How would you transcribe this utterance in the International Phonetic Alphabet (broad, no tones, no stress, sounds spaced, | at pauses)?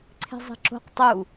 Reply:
ǀʰ e̤ zˤ e̤ ǁ o̤ q tˤ u